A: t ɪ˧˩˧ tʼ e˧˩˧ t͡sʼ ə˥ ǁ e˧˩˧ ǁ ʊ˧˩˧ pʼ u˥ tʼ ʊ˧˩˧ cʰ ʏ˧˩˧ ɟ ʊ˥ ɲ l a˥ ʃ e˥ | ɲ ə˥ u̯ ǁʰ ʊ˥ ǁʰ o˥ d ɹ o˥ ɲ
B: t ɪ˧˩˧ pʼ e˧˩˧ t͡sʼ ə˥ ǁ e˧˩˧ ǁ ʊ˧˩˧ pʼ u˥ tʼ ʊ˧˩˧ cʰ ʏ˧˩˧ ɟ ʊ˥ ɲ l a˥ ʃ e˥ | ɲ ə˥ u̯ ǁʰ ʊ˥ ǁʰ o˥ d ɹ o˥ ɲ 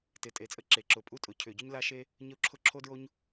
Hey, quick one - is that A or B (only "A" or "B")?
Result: A